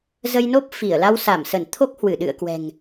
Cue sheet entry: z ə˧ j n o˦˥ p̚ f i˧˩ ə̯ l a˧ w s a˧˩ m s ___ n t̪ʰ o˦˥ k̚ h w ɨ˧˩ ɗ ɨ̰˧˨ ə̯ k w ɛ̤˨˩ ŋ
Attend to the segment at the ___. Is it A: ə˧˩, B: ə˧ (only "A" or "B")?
A